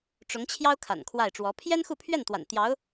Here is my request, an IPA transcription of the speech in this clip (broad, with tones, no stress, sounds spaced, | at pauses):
ʈ͡ʂ ʊ˧˥ ŋ t͡ɕʰ j ɑ˥ ʊ̯ kʰ a̰˨˩ n kʰ w a˥˩ ɪ̯ ʈ͡ʂ w ɔ˧˥ pʰ j ɛ˥ n x u˥˧ pʰ ɥ ɛ˥˩ n t̪ w a̰˨˩ n t̪ j ɑ˧˥ ʊ̯